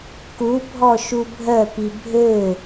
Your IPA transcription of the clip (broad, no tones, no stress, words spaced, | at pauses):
kubʱɔʃu bʱœpi bʱø